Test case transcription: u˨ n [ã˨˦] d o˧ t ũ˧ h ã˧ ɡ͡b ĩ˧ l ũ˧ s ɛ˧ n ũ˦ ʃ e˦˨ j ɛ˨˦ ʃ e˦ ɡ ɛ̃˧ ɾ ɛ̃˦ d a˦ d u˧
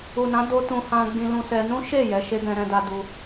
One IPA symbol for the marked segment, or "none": ã˨˦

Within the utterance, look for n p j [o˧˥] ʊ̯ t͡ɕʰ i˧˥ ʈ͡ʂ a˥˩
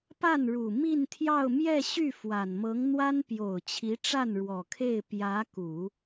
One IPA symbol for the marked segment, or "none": o˨˩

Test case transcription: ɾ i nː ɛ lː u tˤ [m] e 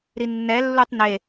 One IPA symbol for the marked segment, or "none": n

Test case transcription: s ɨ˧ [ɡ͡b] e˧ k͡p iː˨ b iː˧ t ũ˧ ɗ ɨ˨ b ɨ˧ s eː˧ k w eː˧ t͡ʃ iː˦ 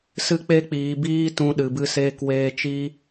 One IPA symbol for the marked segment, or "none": k͡p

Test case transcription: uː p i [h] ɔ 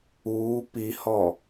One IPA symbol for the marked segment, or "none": h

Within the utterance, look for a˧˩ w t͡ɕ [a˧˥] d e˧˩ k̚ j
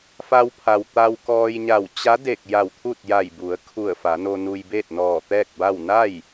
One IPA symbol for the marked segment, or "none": a˧˥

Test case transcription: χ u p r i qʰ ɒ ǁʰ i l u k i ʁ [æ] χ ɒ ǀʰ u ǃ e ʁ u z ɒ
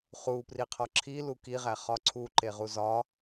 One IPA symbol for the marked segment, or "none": æ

